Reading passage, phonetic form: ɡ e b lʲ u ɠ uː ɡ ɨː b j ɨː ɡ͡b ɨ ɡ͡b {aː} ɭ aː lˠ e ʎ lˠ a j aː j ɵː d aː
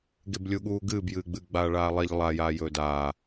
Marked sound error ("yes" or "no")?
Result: no